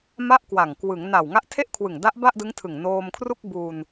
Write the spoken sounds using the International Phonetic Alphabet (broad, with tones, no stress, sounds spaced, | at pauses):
m a˥˩ ʔ k w a˨˩ ŋ k w ɯ˩˦ ŋ n a˨˩ w ŋ a˦˥ ʔ tʰ e˥˩ ʔ kʰ w ɯ˨˩ ŋ d a˦˥ ʔ b a˥˩ ʔ d ɯ˦˥ ŋ tʰ ɯ˨˩ ŋ n oː˧ m kʰ r u˥˩ k̚ b u˧ n